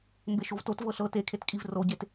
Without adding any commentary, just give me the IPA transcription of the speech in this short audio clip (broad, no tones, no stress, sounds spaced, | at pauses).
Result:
m b e ʃ o v t o t v ɤ ɬ ɤ t e kʰ e t kʼ i v r o ɟ e t